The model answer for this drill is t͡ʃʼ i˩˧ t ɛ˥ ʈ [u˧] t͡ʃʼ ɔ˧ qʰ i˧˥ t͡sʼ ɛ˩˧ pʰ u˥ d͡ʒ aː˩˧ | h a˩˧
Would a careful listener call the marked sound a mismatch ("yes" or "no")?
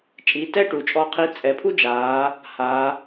yes